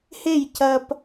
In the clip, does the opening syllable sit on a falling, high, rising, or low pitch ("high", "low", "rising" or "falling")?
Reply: falling